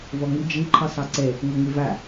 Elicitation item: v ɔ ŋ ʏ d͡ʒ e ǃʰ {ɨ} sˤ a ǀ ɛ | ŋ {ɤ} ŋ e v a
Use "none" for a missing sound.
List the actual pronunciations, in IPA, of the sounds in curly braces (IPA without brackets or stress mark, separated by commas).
ɨ, o